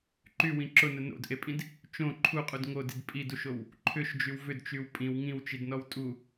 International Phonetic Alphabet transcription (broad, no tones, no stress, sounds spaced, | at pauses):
ǃ y w ĩ ǁ ʊ n ʊ n o̰ d ʔ e pʼ ĩ d | t͡ʃ õ ǃʰ u qʼ u d ŋ o d i d pʼ i d u ʃ o w | ǃʰ ʏ ʃ d͡ʒ y w v ʏ d t͡ʃ y w pʼ ĩ w ŋ ĩ w t͡ʃ i d n ɔ w tʼ u